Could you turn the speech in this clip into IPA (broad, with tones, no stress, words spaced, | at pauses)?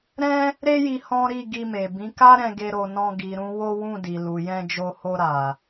ɾɛ̃˦ | ɾe˦ji˧ hɔ̃˦ ɾi˦˨ ɡi˧me˨ bĩ˨˦ka˦ɾɛ̃˧ ɡe˧ɾo˨nɔ̃˧ ɡi˨ɾũ˨˦ wo˦wũ˦˨di˨ lu˨jɛ̃˧d͡ʒo˧ho˧ ɾa˨